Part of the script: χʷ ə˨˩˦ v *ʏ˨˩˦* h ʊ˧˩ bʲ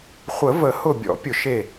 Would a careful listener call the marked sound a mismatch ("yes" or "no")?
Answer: yes